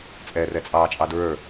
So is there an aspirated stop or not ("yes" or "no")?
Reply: no